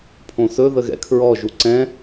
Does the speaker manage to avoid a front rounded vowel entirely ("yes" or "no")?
yes